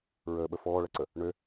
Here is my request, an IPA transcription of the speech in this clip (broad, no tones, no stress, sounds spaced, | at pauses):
ɹ əː ɓ ə f ɔː ɭ ɐ ǀ ə | ɳ ø